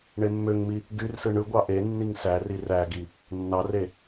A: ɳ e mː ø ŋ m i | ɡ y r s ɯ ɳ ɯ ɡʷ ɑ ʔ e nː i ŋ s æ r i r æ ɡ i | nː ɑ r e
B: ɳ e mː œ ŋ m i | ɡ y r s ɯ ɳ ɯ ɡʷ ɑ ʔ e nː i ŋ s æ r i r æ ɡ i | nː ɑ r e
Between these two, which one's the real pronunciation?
A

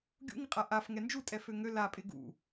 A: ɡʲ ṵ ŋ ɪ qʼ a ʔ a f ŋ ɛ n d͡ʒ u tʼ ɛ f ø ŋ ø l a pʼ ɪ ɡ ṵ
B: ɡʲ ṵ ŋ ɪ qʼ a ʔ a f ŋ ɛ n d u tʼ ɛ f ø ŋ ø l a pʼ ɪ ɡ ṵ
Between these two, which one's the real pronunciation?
A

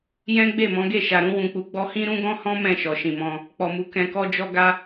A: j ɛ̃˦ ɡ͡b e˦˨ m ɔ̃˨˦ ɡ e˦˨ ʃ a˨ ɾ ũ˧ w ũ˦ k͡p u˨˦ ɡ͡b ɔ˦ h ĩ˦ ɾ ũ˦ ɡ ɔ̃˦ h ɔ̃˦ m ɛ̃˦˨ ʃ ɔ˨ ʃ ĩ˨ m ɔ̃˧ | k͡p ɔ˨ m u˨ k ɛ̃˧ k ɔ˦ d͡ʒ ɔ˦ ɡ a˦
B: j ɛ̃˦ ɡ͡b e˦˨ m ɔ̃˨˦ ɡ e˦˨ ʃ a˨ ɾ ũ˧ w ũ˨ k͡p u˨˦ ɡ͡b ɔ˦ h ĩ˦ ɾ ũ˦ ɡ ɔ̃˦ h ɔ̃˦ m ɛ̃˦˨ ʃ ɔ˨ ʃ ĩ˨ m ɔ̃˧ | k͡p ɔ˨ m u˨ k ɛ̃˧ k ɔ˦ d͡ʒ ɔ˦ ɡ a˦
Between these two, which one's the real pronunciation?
B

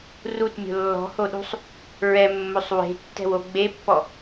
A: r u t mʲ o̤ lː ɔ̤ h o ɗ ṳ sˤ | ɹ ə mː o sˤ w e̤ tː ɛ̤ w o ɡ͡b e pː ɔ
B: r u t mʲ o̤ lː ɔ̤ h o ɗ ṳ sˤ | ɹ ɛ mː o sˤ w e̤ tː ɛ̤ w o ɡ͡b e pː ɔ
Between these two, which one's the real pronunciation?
B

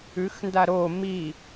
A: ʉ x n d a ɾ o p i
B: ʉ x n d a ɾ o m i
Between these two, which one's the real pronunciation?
B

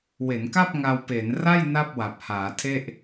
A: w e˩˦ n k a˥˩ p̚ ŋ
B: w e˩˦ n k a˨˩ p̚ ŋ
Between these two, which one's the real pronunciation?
A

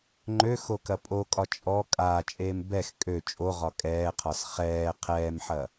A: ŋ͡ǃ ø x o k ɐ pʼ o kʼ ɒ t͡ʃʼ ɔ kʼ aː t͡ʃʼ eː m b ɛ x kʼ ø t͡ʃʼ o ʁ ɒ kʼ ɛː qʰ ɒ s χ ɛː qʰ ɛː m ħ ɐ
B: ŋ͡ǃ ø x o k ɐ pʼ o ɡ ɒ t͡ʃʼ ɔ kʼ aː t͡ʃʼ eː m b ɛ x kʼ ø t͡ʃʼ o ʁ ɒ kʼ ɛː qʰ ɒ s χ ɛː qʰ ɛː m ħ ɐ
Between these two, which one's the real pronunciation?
A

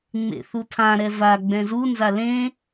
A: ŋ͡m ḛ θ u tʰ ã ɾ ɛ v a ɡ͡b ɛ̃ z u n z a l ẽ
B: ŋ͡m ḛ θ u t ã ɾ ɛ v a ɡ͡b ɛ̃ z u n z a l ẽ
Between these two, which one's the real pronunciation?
A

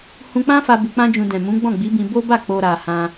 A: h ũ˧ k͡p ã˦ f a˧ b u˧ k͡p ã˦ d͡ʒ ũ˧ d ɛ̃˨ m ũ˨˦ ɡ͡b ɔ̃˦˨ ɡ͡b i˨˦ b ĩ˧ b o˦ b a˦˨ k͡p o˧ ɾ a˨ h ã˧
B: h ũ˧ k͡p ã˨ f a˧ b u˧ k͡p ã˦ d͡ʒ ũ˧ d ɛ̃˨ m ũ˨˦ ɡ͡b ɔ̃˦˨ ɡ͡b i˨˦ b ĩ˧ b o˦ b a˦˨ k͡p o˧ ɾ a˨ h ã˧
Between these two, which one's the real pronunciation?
A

